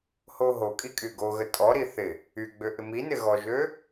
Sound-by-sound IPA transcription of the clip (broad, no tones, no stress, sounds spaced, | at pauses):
h o ɦ o kʼ i kʼ y ɡ o ɣ ə tʼ ɔ ɾ i θ ɪ | y ɡ͡b ø ʔ ɪ m i n ɪ ɣ ɔ ʒ ø